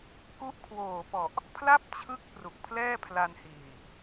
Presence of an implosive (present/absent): absent